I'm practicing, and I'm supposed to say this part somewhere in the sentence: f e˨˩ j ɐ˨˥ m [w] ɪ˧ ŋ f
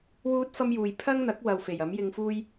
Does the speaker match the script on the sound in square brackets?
no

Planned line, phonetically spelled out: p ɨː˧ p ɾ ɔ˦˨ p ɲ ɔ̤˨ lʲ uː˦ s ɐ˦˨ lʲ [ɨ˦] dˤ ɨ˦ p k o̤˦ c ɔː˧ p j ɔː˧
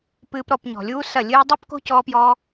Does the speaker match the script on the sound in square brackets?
no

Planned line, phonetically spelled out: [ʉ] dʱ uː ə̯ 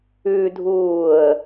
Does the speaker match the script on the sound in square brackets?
yes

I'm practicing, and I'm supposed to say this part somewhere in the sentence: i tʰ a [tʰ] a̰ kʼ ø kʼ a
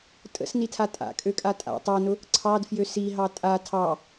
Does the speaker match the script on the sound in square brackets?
no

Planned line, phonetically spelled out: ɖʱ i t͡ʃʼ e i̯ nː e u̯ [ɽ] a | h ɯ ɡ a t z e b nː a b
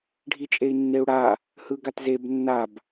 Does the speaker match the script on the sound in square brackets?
yes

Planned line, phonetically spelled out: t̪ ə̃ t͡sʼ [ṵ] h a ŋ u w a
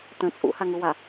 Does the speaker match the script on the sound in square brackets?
yes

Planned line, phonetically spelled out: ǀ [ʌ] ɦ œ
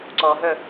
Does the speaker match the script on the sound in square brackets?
no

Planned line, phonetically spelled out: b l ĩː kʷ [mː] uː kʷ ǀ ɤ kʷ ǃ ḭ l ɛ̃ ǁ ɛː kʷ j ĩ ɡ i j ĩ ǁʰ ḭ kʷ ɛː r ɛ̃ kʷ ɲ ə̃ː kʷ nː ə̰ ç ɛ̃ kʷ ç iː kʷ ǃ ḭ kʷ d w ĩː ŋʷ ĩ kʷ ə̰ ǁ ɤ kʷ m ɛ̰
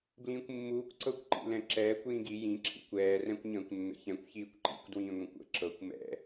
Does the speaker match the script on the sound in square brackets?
yes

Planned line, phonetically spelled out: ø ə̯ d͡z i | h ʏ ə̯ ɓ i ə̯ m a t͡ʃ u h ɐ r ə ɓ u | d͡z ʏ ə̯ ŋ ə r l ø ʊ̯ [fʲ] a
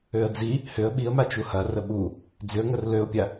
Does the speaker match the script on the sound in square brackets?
no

